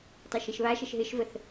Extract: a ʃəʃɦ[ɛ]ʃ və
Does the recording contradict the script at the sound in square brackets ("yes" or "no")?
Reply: yes